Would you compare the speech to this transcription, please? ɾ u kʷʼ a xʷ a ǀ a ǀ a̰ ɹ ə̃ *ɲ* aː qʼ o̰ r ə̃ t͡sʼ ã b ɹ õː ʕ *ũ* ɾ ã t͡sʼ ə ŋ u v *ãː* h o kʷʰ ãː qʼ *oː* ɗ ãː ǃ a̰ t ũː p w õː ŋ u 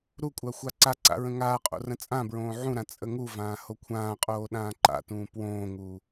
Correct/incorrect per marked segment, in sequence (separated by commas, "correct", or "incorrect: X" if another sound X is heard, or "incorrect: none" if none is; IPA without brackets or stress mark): incorrect: ŋ, correct, correct, correct